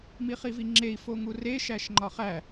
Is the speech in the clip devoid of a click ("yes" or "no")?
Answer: no